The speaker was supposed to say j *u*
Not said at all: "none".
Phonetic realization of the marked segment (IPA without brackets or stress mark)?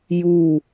u